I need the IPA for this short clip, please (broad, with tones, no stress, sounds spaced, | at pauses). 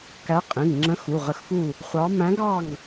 k æ˧˥ qʼ ĩ˩˧˩ ŋ ŋ͡ǁ ə̃˧˥ x u˩˧˩ ʁ ə˧˥ x f u˥˨ | χʷ ɑ˧˥ m æ̃˧˥ ɡ ɑ˥˨ ŋ